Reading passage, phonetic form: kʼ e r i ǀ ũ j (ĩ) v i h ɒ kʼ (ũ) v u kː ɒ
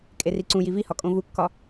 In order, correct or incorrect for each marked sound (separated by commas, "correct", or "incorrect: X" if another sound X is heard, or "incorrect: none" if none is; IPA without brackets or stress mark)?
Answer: incorrect: i, incorrect: õ